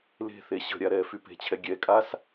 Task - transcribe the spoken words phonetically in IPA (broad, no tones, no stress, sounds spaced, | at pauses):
l e̤ θ e ɕ ə̤ ɾʲ a ɾ ɛː f y p e̤ t͡ɕʰ ɛ ɡʲ ɛ kʼ a s